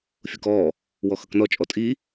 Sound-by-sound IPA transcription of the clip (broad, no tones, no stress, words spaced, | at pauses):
fʲukɔː | wɔxʌknɔ t͡ʃʼɔtʼi